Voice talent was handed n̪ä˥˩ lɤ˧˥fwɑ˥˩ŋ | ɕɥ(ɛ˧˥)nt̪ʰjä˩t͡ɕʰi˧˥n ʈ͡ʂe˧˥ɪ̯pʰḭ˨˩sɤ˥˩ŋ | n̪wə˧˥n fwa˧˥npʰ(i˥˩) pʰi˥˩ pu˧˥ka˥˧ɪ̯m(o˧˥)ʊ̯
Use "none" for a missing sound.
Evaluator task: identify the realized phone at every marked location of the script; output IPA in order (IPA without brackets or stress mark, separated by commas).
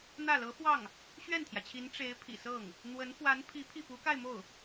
ɛ˥˩, i˧˥, o˥˩